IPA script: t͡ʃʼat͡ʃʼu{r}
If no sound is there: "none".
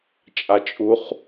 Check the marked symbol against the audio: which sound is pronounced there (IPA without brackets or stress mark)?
χ